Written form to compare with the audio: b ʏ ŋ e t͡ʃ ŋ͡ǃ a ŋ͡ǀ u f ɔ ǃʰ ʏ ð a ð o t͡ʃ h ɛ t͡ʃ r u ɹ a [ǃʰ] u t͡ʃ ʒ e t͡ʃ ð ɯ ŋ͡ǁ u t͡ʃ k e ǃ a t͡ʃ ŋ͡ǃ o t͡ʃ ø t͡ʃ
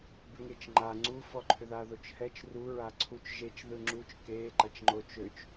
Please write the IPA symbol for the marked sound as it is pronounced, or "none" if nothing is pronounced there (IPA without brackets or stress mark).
ǀʰ